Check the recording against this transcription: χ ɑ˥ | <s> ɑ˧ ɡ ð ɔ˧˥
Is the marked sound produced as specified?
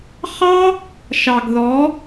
no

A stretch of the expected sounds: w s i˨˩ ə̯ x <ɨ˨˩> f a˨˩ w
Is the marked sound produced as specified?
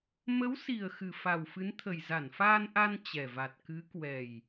yes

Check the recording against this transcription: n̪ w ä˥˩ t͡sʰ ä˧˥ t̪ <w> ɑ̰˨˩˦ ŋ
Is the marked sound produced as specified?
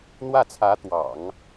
yes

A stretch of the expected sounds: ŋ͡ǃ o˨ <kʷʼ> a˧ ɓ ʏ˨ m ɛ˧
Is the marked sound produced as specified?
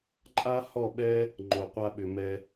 no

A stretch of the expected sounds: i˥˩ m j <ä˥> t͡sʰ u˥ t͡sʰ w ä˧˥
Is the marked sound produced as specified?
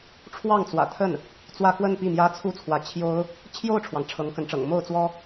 yes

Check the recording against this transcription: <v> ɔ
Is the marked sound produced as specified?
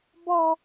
no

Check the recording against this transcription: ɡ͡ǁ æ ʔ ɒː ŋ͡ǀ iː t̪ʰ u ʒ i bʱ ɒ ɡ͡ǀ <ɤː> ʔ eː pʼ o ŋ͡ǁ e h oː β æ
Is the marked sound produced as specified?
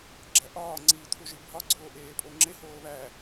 no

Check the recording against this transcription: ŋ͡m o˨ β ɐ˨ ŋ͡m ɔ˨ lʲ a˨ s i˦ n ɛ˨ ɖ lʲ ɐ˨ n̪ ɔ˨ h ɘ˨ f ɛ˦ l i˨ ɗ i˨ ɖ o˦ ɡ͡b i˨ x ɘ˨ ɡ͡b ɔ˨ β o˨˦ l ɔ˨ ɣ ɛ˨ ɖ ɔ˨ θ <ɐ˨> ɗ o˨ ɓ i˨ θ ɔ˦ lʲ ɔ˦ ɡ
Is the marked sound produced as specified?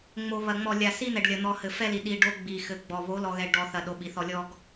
yes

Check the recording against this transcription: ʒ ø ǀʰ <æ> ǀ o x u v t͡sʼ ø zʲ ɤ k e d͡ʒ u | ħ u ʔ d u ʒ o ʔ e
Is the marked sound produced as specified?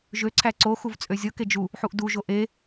yes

